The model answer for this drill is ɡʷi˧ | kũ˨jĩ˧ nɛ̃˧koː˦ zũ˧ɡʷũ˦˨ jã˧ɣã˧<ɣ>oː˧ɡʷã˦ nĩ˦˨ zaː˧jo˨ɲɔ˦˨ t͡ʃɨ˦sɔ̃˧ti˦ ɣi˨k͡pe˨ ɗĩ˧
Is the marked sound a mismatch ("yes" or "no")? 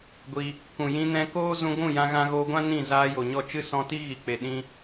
no